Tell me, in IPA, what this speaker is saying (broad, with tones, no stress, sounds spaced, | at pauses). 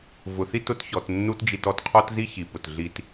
v ʊ˨ θ i˦ t ʊ˧ t ç ɔ˨ t nː u˦ t d͡ʒ i˧ t ɔ˨ t qʰ ɔ˦ t z i˦ ç i˨ p ʊ˨ t ɮ i˧ t